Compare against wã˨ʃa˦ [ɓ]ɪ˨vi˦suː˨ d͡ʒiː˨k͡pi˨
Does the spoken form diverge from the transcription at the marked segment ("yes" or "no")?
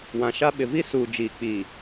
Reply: no